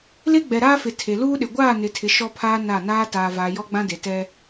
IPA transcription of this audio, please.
le˦ɡ͡bɛ˨ɾaː˦fɪ˨ tʰe˨luː˦ɗɪ˨ ɡʷaː˦˨nɪ˨tʰɪ˨ ʃɔ˦pʰaː˦ na˦˨naː˦ taː˨vaː˨ jɔ˦ɡ͡bã˦de˨ tɛ˦

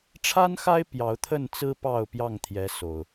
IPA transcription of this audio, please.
ʈ͡ʂʰa˦nxa˦ɪ̯ pjɑ˨˦ʊ̯t̪ʰə˥˨nt͡sɹ̩˦ pɑ˥˨ʊ̯pjɑ˥˨ŋt̪ʰjɛ˨˦ so˨˩ʊ̯

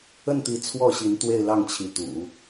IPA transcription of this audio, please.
ə˥˩nt̪i˧˥ t͡sʰwɔ˥˩ɕi˧˥n t̪we˥˧ɪ̯lɑ˥˩ŋt͡ɕʰi˧˥t̪ṵ˨˩˦

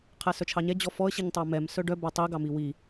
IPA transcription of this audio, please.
qʰɛsœt͡ʃʰɑɲɛ d͡ʑɔfɔə̯ ɕiɲtˤɑmɛm sœɖœ bætˤi ɡɑmiwi

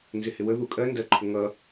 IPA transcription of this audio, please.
nzɪhɪwə ðukʼɜ ndɜǃʰʊŋʌ

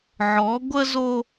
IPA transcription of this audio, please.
ʕɔ˨˦ɡʷə˦zo˦

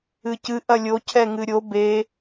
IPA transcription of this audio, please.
ɨcɨ ʔɐlʲo cʰɛŋɨɾʲo be

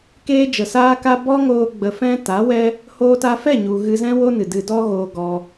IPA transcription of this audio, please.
keː˧d͡ʒə˨saː˧ka˧ bɔ˦ŋoː˧ ɡ͡bə˧fɛ̃˦ ta˨˦wɛ˦ | hoː˧ta˧fɛ˦˨ɲu˨ ɣɨ˧zɛ̃˦woː˦ nɨ˨dɨ˧ dɔ˦ɣoː˧ɡɔ˧

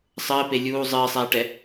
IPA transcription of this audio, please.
sˤɘːpe lʲuː zˤɨːsˤɛːʈɛ

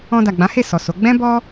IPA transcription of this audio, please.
ɔ̃˧da˨ɡ͡bã˨˦he˦˨ sɔ˨so˨˦ ɡ͡bɛ̃˦ bɔ˦

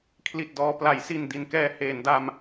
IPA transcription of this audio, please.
kʰli˨˩t̚dɔː˧ pla˩˦jsi˨˩n di˩˦nkɛː˧ heː˩˦nda˧m

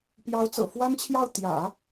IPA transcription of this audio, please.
pjɑ˧˥ʊ̯t͡sɤ̰˨˩ fwa˥nt͡ɕʰjɑ˥˩ʊ̯ t̪jä̰˨˩˦

